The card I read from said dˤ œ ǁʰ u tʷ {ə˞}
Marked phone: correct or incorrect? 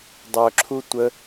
incorrect: ə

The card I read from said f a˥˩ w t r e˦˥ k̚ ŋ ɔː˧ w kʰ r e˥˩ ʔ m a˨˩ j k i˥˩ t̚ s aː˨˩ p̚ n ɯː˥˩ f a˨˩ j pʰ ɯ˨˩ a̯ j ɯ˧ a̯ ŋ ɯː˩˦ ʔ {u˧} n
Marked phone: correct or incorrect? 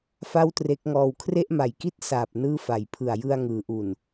incorrect: u˨˩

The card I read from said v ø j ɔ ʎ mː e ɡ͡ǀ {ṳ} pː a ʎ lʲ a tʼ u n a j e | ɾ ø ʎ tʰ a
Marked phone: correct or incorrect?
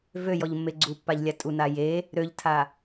incorrect: u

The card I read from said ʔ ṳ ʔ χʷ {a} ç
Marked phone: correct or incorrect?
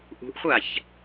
correct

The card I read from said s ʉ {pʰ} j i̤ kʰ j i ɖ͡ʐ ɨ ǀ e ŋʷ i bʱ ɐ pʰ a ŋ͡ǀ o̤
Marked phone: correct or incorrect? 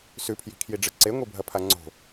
correct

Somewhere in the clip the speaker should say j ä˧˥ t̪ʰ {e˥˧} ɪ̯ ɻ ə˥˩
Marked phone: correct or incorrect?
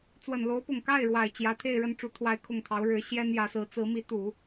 correct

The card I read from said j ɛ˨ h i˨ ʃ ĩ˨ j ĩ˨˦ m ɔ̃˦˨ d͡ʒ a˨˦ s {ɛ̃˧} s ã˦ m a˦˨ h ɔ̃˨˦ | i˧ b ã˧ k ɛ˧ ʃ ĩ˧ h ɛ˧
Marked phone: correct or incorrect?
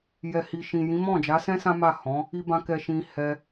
incorrect: ɛ̃˦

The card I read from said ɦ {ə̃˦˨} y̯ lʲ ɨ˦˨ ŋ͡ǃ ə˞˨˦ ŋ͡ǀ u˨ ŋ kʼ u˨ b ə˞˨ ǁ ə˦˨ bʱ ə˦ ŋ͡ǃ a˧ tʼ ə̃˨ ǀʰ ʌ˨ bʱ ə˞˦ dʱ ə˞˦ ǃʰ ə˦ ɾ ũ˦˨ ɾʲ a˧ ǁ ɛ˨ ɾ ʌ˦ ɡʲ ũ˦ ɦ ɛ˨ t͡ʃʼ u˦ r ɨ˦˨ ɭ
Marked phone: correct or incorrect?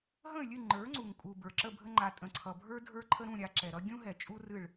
correct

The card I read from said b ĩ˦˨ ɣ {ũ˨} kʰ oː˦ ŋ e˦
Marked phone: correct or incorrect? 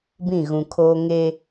correct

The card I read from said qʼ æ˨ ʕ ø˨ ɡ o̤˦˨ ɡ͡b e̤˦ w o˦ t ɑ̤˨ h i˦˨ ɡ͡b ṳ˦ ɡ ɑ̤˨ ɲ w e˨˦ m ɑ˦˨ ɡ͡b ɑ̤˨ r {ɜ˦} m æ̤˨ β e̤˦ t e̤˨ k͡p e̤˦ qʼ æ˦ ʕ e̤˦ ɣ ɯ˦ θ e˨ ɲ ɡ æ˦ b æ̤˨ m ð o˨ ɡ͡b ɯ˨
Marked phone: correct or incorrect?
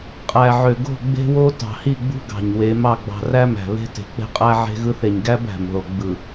incorrect: æ˦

